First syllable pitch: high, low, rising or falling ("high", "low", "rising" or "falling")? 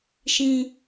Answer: low